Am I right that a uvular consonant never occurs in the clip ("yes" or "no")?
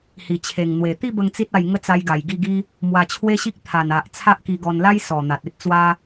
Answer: yes